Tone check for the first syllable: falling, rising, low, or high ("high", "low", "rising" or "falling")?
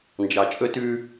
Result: low